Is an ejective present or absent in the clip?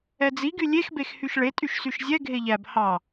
present